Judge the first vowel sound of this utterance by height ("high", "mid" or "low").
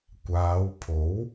low